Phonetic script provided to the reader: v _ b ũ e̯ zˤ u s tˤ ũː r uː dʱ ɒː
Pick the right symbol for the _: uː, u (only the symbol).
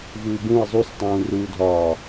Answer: uː